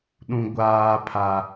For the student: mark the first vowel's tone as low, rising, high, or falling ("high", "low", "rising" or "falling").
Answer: high